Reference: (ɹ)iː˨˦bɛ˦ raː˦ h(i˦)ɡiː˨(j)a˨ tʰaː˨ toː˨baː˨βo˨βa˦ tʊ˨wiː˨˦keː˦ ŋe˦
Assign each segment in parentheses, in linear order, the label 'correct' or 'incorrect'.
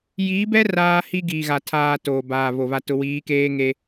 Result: incorrect: j, correct, incorrect: ɣ

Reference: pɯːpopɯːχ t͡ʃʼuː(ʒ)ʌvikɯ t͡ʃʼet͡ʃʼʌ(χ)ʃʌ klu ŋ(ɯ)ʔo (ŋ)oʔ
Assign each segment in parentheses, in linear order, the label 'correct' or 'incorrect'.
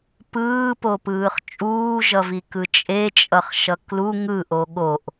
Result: correct, correct, correct, incorrect: ɠ

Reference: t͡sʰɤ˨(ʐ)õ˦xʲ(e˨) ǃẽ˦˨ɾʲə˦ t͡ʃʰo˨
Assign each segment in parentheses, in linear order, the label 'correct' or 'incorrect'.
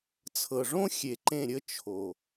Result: correct, correct

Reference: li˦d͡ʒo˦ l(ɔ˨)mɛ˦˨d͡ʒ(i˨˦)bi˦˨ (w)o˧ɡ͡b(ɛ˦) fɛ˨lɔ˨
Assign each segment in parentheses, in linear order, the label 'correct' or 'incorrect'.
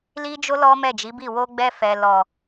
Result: incorrect: ɔ˦, correct, correct, incorrect: ɛ˧

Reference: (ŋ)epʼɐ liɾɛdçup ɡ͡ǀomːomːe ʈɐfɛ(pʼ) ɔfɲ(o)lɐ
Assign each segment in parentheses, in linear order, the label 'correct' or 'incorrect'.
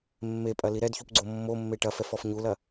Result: incorrect: mː, incorrect: f, incorrect: u

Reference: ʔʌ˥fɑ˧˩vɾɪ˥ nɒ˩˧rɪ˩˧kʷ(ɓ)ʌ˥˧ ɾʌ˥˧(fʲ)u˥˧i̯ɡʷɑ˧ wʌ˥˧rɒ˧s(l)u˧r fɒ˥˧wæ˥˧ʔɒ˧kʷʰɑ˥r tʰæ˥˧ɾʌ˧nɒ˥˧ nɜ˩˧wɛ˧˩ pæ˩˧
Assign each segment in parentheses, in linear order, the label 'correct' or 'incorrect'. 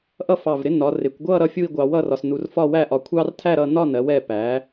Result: incorrect: ɡʷ, correct, incorrect: n

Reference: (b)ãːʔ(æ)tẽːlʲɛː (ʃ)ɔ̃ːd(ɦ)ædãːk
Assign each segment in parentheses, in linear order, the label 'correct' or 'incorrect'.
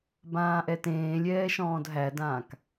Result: correct, incorrect: ɛ, correct, correct

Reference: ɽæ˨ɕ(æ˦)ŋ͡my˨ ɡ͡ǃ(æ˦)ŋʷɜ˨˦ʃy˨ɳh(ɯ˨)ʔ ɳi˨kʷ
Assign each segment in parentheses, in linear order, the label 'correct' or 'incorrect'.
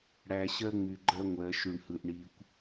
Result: incorrect: ɜ˦, incorrect: ɜ˦, correct

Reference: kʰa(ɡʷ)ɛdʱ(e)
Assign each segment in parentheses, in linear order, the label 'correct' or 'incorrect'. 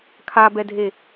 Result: incorrect: b, correct

